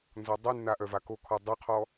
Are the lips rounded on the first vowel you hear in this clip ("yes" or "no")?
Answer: yes